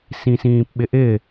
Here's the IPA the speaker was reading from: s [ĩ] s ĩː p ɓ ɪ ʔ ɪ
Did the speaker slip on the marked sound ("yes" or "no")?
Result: no